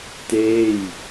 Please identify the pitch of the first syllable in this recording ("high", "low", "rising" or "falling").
falling